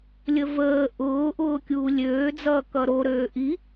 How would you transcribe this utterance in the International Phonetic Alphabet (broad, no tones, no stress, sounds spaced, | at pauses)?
lʲ ə v əː ʔ ʊː ʔ ʊː kʲ uː lʲ øː d͡z ʌː k ʌ ɾ o ɾ øː ʔ i